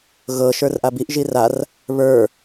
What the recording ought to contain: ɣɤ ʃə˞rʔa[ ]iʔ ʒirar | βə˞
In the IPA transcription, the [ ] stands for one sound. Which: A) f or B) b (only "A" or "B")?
B